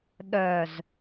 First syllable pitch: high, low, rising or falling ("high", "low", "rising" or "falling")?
low